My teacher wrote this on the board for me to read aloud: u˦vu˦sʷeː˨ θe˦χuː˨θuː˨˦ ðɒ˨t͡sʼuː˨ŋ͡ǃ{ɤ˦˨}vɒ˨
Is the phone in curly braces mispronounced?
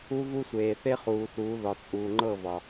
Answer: no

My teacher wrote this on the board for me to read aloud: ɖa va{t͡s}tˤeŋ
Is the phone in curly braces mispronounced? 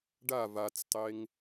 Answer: no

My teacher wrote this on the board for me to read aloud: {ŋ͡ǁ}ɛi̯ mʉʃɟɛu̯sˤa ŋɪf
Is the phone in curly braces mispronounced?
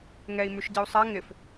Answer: yes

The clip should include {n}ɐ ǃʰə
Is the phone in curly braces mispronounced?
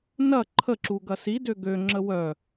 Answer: no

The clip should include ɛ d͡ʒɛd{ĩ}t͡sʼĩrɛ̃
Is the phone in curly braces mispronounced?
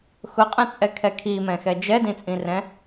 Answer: no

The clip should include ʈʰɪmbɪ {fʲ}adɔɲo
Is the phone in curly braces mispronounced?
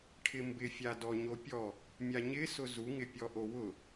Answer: no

